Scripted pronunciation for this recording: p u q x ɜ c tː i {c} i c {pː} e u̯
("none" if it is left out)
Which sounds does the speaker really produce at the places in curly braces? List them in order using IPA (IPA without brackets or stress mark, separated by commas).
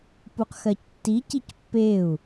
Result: c, pː